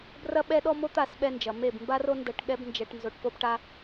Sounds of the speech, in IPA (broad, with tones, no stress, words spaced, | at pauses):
brɐ˦ɓɛ˦ɗɔ˦ mo˦t̪a˦˨sɓɛ˧nd͡ʒɐ˨ me˦˨bmba˦ro˦ ndɐ˧ʈ ɠɛ˦bnd͡ʒɛ˧ʈ nzo˧ʈpo˦bʈa˦